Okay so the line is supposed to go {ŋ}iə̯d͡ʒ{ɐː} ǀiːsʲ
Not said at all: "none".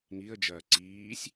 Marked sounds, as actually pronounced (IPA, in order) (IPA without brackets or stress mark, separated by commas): ŋ, ɐː